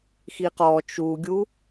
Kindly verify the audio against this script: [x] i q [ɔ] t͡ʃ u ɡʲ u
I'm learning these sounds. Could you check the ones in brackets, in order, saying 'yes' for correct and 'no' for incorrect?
yes, yes

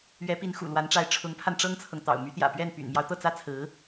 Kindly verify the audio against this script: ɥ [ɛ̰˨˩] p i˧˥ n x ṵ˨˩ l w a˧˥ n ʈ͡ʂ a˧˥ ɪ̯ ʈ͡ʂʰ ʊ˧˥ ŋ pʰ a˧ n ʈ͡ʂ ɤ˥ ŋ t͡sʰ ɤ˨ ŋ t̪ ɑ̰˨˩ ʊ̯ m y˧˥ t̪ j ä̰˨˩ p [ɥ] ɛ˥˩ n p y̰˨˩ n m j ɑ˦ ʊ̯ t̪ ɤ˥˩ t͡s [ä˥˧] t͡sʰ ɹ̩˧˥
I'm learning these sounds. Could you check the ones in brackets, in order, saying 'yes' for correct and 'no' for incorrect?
no, yes, no

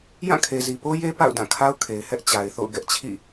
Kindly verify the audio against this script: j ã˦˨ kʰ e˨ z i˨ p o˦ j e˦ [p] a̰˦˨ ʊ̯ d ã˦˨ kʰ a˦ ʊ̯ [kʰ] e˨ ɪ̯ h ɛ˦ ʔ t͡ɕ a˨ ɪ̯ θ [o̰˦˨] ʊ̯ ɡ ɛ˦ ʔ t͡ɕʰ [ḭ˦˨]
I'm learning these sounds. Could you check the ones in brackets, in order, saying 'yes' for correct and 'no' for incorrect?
yes, yes, yes, yes

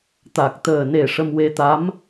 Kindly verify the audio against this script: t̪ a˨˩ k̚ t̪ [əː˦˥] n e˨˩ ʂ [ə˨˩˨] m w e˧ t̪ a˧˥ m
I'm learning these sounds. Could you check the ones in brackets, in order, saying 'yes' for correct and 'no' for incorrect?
no, no

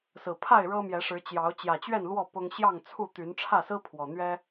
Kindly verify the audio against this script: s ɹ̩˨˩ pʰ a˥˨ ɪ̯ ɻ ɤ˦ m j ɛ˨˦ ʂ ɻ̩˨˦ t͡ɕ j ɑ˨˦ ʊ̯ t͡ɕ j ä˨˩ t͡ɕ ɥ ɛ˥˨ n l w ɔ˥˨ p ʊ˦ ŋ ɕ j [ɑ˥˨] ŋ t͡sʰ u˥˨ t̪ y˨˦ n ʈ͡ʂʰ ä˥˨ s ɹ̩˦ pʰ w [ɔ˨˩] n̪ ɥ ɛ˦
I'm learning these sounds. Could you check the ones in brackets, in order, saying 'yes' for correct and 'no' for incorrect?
yes, yes

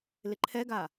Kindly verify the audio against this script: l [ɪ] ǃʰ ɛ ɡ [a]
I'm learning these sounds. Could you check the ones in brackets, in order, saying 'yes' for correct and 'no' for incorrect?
yes, yes

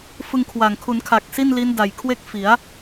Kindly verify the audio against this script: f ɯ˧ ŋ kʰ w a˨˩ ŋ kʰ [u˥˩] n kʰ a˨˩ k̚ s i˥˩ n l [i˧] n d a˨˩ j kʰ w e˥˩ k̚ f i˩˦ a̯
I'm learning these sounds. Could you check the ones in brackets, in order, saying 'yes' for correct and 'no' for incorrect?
no, no

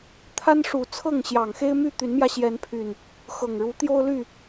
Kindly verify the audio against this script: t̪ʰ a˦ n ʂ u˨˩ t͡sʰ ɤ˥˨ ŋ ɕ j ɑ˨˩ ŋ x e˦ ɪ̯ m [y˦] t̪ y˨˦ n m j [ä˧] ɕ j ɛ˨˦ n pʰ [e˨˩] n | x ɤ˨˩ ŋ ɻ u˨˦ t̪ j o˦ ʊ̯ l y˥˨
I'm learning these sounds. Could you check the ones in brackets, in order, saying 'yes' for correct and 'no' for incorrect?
no, yes, no

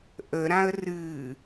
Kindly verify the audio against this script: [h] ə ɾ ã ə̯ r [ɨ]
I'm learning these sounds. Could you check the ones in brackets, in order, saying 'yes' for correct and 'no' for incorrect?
no, yes

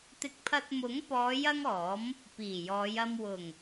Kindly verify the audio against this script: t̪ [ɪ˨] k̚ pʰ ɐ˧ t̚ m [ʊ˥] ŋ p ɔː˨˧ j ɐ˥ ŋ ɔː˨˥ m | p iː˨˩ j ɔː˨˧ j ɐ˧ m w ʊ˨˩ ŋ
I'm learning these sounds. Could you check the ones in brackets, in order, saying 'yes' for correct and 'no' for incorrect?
no, no

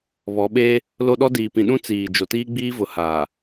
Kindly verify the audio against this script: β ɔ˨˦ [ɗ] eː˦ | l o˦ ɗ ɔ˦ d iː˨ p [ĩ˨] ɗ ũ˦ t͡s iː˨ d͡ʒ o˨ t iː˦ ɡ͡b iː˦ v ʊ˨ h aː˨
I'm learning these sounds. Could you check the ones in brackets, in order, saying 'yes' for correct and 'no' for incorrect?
no, yes

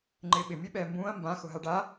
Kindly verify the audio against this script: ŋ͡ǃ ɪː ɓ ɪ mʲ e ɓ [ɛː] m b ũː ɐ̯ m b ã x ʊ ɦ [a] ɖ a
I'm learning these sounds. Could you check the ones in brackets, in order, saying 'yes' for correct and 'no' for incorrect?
yes, yes

